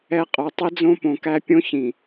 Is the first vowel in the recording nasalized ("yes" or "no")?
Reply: no